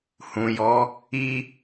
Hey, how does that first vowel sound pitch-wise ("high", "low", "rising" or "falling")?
low